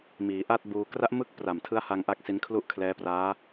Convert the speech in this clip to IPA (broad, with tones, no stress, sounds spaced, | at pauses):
m iː˩˦ ʔ a˥˩ t̚ b uː˧ k r a˦˥ ʔ m ɯ˦˥ k̚ p r a˨˩ m tʰ ɯ˦˥ a̯ h a˧ ŋ ʔ a˥˩ k̚ s i˦˥ n kʰ l u˥˩ ʔ kʰ l ɛː˦˥ p r aː˦˥